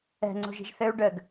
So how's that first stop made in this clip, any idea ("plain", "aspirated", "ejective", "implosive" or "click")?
click